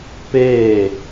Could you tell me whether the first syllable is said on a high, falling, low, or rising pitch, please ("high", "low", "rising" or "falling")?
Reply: falling